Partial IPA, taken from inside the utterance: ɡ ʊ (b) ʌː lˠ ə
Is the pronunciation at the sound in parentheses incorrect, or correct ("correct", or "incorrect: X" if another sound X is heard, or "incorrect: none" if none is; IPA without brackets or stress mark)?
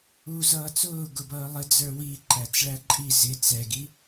correct